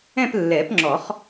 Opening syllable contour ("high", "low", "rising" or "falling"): falling